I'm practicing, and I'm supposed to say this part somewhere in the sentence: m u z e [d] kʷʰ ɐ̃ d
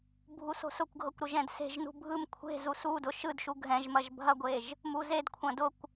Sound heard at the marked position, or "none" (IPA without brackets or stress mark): d